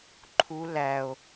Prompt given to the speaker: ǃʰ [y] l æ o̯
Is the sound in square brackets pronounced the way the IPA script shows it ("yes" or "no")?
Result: no